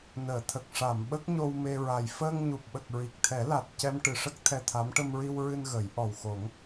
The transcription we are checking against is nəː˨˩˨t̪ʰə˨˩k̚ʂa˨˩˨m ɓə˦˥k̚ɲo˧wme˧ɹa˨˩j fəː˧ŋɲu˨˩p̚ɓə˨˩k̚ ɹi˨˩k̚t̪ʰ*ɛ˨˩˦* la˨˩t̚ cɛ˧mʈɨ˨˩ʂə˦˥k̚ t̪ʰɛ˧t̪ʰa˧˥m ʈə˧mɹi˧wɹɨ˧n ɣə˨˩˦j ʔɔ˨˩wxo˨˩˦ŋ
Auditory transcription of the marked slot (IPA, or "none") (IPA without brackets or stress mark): ɛ˨˩˦